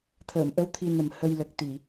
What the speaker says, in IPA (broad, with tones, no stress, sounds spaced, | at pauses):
t̪ʰ əː˨˩˨ m ʔ ə˧˥ w t̪ʰ i˧ n ə˨˩ m h ə˧ j l ə˨˩ k̚ t̪ i˨˩˨